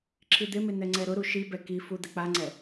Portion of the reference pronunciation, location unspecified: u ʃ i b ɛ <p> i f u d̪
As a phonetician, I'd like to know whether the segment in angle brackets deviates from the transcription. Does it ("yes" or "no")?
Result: yes